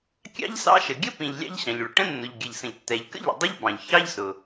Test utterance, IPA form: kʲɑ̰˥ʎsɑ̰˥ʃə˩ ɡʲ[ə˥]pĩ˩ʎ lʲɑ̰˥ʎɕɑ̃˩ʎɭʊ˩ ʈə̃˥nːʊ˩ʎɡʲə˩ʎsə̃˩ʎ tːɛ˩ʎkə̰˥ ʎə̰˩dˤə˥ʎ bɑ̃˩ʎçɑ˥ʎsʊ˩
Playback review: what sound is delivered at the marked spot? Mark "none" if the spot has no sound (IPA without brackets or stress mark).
ə˥